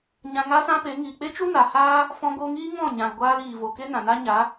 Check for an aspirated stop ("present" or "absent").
absent